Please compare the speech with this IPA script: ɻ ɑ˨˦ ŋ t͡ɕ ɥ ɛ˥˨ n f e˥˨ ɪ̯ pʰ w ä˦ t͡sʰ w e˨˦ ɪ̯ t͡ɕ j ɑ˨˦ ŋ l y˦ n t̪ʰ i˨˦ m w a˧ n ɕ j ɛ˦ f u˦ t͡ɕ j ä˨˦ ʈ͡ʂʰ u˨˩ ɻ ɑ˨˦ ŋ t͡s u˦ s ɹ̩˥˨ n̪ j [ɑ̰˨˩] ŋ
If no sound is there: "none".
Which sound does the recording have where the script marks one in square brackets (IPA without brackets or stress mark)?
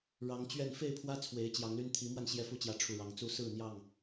ɑ˥˨